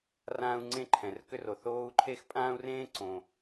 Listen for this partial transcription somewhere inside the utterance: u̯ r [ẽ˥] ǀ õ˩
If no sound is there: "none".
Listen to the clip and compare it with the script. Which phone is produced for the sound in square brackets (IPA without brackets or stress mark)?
ẽː˥